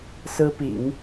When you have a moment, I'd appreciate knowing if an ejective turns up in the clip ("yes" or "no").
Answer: no